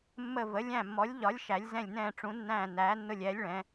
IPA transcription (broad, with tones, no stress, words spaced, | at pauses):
mːə˦˨və˨˥ lʲæ̃˦˨mːɔ˨˥lʲʎɒ˨˥lʲ ʃæ˨˥lʲ zɛ̃˦˨lʲnɛ̃ː˦˨ ʈ͡ʂũ˨˥nːæ̃ː˦˨ næː˨˥nːʊ˦˨lʲɛː˨˥lʲ ɭɛ̃˨˥